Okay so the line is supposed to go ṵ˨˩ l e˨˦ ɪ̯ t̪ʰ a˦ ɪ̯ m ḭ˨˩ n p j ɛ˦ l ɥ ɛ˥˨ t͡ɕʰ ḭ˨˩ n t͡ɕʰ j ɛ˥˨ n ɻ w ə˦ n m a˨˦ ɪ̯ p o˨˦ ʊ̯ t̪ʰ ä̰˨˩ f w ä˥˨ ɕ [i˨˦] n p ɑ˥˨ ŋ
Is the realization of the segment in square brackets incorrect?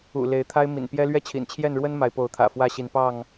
no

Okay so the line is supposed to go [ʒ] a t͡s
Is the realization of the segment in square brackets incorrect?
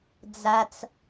yes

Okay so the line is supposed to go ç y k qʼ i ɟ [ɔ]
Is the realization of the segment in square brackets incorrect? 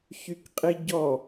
no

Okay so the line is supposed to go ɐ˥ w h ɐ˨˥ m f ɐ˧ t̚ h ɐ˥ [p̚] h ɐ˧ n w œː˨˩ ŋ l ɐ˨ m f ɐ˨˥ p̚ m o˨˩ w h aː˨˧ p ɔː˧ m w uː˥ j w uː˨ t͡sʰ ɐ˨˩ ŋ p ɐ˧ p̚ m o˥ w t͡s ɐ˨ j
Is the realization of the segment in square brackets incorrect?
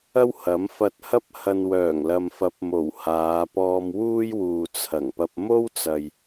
no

